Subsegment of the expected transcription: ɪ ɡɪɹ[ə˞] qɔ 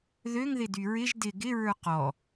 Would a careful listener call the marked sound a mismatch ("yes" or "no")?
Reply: no